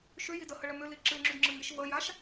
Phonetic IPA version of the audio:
ʃʏji dəhəɭə mʏli ǁɨŋ͡ǁydŋ͡ǁɨŋiʃ vəjaʃ

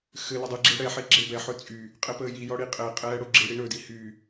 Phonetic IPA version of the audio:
xɘ lɵdˤiɡ͡ǁe ɽɛħe ɡ͡ǁebɛħɵ t͡sʼy | qʼɛpəːjijɔ ɽiqʼɛqʼɛː ɽoɡ͡ǁiɽi ɳɵdi hy

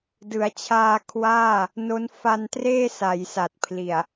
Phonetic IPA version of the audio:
dɯ˩˦a̯t͡ɕʰaː˧kʰwaː˥˩ | no˦˥n fa˧ntreː˥˩ sa˩˦jsa˨˩t̚pʰli˨˩a̯

